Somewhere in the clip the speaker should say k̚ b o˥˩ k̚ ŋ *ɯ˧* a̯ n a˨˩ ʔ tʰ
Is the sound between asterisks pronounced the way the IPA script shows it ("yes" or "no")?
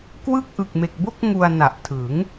no